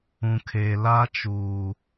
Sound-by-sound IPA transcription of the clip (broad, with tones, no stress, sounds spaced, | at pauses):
ũ˨ kʰ e˨ l a˦ t͡ʃ uː˨